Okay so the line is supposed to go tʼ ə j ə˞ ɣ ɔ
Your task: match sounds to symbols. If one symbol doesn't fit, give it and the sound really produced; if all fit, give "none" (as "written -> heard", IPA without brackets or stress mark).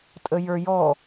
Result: ɣ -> j